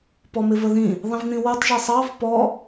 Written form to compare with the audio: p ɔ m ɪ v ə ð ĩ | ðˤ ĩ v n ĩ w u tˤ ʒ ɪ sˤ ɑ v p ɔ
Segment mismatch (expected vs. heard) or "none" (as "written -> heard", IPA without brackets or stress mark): none